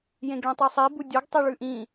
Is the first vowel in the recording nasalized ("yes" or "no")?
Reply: yes